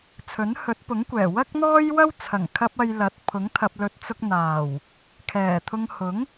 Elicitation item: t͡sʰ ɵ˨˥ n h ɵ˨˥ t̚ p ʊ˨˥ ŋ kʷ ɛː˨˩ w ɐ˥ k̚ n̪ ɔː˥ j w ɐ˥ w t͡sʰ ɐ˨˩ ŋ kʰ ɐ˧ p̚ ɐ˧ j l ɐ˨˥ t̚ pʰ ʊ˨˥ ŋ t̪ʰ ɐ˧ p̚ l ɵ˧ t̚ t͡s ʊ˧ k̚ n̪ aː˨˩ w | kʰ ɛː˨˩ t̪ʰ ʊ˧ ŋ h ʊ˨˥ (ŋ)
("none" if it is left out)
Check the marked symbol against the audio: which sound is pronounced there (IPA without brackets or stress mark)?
ŋ